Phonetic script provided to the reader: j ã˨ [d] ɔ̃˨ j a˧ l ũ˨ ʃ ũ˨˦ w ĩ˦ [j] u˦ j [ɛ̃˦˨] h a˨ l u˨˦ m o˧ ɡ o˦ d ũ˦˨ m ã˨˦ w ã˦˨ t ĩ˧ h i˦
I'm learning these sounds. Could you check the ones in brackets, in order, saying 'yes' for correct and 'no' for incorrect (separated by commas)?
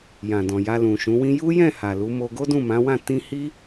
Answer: yes, yes, yes